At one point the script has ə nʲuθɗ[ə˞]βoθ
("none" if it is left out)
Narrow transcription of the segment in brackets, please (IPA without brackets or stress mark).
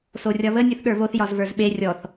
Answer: ə˞